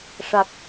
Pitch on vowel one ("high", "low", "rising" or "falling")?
low